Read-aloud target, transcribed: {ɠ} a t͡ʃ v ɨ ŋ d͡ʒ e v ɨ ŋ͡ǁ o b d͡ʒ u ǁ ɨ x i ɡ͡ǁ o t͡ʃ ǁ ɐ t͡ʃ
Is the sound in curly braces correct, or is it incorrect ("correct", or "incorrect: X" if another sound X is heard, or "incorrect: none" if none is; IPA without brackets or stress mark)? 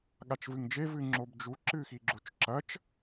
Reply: correct